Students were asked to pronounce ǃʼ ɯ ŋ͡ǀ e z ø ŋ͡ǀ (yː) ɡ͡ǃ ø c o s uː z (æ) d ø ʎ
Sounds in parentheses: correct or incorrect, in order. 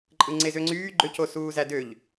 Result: correct, correct

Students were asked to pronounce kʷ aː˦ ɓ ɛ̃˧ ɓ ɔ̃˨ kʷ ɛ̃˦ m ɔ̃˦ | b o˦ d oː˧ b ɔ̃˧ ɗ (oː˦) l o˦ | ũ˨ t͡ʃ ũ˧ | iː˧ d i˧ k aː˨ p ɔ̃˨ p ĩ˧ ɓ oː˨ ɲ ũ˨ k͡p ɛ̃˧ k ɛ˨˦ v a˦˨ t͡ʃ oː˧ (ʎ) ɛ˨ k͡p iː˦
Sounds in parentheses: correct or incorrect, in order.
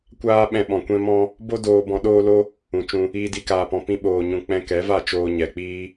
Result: correct, incorrect

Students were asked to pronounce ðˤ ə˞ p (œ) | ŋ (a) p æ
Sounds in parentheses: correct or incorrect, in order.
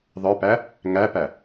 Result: incorrect, incorrect

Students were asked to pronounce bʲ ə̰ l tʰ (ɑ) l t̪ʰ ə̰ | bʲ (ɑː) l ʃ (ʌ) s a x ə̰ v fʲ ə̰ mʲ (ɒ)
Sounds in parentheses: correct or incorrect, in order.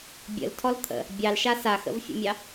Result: incorrect, incorrect, incorrect, incorrect

